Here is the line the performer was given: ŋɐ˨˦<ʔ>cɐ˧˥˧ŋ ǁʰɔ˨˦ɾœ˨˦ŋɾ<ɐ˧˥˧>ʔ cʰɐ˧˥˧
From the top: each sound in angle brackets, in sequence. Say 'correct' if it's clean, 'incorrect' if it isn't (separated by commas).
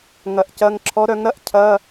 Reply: correct, correct